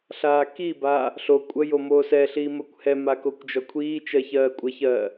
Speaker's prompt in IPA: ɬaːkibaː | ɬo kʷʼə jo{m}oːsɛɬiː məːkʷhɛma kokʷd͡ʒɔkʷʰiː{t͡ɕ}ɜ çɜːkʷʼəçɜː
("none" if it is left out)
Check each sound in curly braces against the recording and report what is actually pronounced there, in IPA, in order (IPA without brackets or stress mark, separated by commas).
m, t͡ʃ